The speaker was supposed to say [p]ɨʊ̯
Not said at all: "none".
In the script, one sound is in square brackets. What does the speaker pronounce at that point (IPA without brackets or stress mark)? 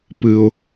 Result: p